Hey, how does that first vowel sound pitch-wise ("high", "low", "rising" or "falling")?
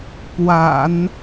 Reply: low